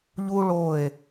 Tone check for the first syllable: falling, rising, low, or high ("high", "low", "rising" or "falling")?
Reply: high